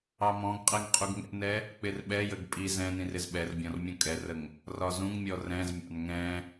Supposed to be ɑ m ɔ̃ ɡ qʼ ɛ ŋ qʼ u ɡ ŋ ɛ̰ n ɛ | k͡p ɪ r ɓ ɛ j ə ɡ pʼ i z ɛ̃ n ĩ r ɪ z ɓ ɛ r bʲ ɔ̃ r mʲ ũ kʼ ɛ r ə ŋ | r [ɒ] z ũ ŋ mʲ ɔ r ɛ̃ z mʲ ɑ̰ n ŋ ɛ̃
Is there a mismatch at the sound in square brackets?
no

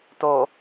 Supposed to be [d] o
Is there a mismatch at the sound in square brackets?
yes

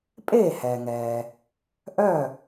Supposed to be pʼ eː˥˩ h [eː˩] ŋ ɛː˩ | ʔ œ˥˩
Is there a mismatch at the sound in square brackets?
yes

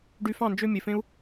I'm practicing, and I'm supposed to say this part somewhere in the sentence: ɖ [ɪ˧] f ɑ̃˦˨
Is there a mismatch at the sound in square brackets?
yes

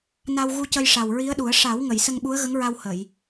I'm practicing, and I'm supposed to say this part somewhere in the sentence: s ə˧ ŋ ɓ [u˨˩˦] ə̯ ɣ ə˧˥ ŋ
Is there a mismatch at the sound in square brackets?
yes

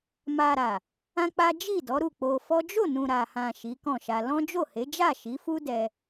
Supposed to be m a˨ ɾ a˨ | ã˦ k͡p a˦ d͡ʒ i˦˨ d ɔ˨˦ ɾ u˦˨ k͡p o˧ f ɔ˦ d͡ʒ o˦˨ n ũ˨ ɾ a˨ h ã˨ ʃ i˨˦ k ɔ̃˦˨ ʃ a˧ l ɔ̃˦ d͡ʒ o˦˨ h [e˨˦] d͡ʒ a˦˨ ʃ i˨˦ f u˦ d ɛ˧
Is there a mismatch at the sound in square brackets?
no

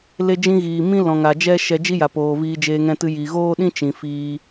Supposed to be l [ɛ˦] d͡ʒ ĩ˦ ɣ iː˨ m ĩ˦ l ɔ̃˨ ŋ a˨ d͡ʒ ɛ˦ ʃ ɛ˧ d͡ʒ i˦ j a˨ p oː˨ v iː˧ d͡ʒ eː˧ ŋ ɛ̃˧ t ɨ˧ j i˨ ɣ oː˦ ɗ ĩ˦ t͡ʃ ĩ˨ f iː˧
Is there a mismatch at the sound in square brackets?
yes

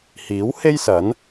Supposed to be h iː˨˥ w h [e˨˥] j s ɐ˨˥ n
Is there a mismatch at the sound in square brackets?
yes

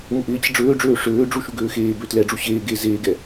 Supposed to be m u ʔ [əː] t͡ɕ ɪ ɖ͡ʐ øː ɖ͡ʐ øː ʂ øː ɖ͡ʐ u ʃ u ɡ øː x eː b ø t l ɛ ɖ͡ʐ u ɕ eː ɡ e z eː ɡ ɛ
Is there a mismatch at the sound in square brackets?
yes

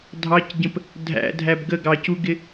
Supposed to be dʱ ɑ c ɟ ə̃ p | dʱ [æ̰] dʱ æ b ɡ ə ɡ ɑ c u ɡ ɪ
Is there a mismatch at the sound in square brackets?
no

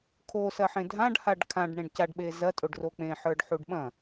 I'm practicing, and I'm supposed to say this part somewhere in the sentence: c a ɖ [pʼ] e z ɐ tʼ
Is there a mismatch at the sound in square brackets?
yes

